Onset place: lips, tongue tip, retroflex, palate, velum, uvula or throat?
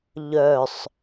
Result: palate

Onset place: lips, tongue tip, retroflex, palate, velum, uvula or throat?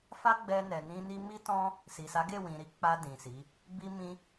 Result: lips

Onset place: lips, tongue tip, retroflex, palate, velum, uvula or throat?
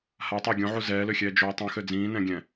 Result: throat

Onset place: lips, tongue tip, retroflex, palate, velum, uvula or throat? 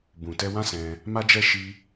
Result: lips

